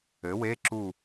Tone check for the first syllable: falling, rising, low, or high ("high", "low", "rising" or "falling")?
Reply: rising